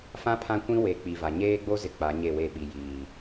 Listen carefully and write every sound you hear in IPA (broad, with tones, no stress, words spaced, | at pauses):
fã˦ pʰã˦kʷĩ˦ we˨˦k͡pi˨va˨ ɲeː˦ɡ͡bo˦zɪ˨ k͡pa˨˦ɲe˦˨we˦˨ ɓi˨jiː˨